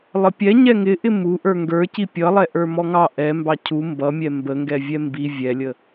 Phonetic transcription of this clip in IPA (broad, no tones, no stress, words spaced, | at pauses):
lˠəpʲɛ ɲɛŋɪʔɪ muʔə˞ ŋɡə˞ci pʲʌlˠɛ ʔə˞mɔŋɑ ʔɛmbɑ cʰu mbʌmʲɛ mbəŋɡɛ vʲɛmbi vʲɛlʲə